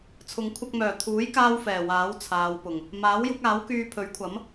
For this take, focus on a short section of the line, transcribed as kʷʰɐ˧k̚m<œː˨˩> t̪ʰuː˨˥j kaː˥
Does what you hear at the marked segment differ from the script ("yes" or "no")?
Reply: no